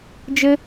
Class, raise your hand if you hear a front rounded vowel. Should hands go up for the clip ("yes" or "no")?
no